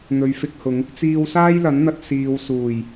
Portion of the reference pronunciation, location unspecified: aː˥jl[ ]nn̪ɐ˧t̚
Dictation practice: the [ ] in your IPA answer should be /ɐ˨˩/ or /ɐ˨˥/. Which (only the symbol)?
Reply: ɐ˨˥